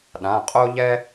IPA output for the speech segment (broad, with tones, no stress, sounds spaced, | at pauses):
ɗ ã˩˧˩ qʼ o˥ ʎ ɛ˥